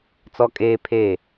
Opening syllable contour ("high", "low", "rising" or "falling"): high